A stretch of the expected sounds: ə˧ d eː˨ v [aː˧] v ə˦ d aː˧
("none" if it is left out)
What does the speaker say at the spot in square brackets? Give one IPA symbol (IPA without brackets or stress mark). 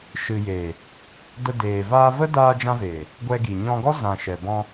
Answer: aː˧